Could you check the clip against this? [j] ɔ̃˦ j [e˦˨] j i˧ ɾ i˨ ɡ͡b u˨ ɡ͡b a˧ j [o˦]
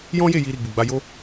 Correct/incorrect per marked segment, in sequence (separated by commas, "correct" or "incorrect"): correct, correct, correct